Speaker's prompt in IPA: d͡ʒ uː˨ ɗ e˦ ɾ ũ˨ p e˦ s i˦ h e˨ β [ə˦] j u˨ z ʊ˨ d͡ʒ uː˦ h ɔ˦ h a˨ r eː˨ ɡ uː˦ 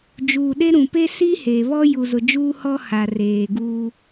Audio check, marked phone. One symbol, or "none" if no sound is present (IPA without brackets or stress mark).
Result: ɔ˦